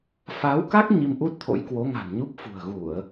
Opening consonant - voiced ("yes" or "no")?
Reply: no